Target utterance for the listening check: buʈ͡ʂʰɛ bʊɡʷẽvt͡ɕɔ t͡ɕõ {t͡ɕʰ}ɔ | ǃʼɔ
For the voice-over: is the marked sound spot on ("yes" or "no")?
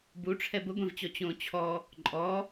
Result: yes